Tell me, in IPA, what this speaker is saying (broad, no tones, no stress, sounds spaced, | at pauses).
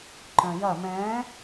ǃ œ̃ j ɐ m ɛ̃